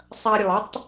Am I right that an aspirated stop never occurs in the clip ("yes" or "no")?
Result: yes